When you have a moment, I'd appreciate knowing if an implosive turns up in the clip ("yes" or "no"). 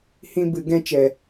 no